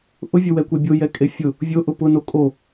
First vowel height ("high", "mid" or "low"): high